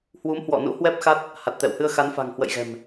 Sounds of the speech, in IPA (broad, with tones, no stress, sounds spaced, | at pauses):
h w u˨˦ m h w ɔ̰˧˨ n ṵ˧˥ h w ɛ˦˥ p̚ x a˦˥ t̚ | h a˨˩ t̚ t̪ ɛ̰˧˨ w h ɨ˧ ə̯ x a˨˦ n f a̤˨˩ ŋ h w ə̰˧˨ j ɣ ɛ̤˨˩ m